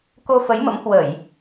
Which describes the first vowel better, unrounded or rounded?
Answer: rounded